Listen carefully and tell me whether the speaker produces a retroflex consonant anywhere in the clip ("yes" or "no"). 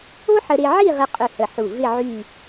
no